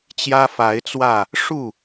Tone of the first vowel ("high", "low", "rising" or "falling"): high